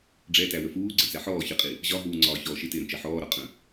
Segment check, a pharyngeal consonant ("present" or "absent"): present